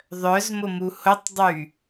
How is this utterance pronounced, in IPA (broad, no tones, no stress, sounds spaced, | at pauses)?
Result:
ðˤ œ z m ʊ m u h ʊ tˤ dˤ y